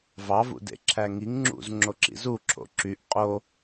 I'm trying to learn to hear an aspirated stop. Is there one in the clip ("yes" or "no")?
yes